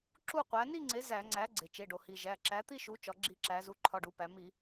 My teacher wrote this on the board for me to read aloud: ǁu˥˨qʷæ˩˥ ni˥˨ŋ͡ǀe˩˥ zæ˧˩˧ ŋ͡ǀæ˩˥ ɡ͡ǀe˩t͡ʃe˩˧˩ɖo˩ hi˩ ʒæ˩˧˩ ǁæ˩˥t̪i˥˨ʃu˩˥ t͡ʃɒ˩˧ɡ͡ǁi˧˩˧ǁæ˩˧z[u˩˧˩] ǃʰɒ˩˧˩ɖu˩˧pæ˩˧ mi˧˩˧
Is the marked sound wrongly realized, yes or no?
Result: no